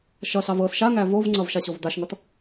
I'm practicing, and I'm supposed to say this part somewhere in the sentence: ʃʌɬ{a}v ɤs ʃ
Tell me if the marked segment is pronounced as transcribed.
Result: no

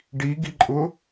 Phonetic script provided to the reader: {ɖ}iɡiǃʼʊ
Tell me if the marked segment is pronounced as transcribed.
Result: yes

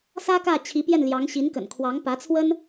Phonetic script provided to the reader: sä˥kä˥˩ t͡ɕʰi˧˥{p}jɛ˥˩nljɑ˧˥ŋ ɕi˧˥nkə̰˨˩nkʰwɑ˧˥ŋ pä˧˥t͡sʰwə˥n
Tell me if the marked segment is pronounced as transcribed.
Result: yes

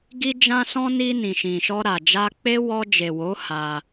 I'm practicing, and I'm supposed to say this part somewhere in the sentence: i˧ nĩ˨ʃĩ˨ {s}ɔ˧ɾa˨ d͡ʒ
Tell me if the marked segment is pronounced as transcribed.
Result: no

